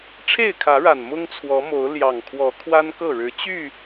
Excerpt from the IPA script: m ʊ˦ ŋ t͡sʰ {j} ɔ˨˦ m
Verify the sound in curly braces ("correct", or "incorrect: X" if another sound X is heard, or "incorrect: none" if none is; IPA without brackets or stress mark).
incorrect: w